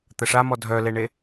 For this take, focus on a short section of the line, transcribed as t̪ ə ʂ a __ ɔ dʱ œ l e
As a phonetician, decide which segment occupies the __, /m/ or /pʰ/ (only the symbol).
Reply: m